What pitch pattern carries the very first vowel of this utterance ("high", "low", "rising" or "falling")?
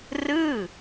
falling